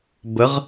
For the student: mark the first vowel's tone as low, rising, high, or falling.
rising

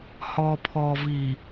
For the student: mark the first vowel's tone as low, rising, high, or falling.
low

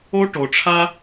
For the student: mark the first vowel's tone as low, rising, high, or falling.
high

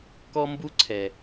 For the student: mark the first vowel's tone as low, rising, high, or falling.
high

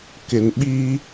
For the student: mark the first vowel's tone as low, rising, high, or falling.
low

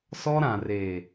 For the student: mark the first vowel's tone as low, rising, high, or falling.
high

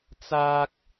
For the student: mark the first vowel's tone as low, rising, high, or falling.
high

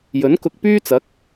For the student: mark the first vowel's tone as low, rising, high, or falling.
rising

